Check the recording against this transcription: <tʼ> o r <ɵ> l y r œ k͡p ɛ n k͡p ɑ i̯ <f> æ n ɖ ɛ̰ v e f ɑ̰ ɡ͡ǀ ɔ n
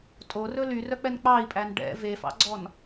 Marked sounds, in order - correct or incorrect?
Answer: correct, correct, incorrect: pʼ

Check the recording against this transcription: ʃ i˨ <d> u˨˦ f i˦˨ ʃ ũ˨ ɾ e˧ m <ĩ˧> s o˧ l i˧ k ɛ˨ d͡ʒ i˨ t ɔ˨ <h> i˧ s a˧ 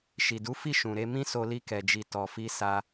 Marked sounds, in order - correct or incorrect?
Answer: correct, incorrect: ĩ˦, incorrect: f

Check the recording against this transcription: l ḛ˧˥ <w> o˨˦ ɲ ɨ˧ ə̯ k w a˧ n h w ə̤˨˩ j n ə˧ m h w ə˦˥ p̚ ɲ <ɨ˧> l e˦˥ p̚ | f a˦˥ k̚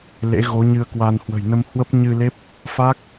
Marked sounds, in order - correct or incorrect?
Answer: incorrect: ɣ, correct

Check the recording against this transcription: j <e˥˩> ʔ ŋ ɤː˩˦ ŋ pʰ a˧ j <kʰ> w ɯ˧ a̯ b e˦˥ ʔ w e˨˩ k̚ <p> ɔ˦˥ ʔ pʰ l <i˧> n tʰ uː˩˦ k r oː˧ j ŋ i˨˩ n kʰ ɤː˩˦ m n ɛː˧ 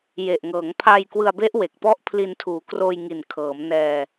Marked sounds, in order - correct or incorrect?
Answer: incorrect: e˨˩, incorrect: k, correct, correct

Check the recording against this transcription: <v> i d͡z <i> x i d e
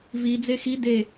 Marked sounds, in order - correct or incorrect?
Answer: correct, incorrect: e

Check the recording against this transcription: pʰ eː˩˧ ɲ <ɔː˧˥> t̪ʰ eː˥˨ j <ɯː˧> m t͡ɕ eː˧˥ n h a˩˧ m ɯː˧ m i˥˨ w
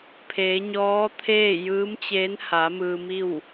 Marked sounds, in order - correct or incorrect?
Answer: correct, incorrect: ɯː˧˥

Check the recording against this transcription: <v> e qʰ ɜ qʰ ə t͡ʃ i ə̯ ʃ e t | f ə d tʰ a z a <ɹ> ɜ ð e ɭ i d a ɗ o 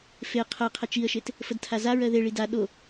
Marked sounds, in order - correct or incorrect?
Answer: incorrect: f, correct

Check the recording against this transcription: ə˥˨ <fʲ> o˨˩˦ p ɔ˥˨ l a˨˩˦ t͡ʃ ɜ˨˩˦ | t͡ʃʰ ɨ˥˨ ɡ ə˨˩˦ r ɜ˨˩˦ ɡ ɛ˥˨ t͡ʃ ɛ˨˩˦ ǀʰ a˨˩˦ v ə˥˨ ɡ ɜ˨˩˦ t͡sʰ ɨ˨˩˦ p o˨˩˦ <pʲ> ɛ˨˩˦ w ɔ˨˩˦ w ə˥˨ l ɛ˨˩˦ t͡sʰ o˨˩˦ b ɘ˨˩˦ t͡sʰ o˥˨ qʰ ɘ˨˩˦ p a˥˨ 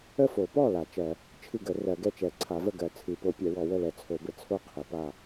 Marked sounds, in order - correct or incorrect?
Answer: incorrect: f, correct

